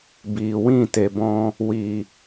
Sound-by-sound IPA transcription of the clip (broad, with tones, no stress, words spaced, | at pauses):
biː˨wĩ˦˨ te˨bɔ̃˧ | wi˨